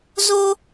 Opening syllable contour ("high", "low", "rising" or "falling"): high